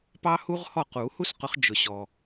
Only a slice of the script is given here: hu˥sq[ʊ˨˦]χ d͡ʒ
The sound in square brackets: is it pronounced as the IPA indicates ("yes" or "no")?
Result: yes